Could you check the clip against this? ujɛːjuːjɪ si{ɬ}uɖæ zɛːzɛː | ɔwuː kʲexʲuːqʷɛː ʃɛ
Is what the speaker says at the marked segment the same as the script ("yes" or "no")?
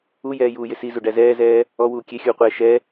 no